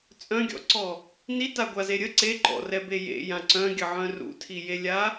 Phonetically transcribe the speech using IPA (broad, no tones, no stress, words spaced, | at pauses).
t͡sʼœ̃ɡʲɔ̰ǀɔ | nitaɡʷaze ɾʲə ǀe ǃɔ̰rɛbe jḛjã ǀœ̃ɡʲəʕœ̃ rṵtʰijelʲa